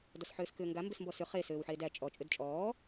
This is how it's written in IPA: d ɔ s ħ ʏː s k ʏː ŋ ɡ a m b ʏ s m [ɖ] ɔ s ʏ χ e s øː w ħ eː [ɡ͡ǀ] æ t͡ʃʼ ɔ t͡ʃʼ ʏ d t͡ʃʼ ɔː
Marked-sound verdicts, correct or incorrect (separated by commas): incorrect, incorrect